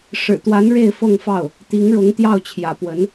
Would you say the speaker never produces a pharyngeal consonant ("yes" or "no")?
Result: yes